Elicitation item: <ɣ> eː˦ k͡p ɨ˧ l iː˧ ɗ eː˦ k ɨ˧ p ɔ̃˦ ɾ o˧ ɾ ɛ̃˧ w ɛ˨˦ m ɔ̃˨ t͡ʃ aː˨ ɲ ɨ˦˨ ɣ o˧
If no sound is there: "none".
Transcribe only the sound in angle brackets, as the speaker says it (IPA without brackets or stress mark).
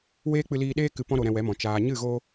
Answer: w